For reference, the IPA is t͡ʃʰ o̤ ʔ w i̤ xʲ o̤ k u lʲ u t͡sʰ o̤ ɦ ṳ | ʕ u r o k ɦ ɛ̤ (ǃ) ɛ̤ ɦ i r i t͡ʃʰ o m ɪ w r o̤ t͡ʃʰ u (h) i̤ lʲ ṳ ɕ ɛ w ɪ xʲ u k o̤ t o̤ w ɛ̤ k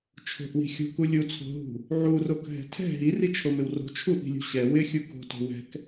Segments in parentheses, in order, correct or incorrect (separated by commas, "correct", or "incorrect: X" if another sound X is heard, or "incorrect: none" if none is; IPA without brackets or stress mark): incorrect: tʰ, incorrect: ʔ